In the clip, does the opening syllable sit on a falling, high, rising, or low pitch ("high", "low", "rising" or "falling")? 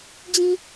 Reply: low